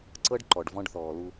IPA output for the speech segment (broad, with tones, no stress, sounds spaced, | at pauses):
ǀ ɤ˦ ɖ ǃ ɔ˨ ɖ v ɔ̃˦ ɖ θ ɔː˨ l u˦